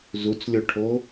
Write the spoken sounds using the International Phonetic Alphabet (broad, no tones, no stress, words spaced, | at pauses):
zut͡slʲoʈʰo